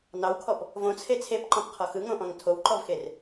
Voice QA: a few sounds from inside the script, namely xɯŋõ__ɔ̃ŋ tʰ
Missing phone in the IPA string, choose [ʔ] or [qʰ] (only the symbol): ʔ